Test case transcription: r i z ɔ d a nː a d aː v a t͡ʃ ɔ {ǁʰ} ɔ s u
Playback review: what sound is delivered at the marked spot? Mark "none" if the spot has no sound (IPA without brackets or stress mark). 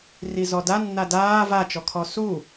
kʰ